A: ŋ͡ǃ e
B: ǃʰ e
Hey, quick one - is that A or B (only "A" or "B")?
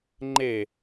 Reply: A